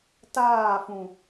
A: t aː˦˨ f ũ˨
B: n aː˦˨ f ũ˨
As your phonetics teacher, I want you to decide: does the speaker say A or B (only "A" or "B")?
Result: A